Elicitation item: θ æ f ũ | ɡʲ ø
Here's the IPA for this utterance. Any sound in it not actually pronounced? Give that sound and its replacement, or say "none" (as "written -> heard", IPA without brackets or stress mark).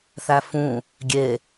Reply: ø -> e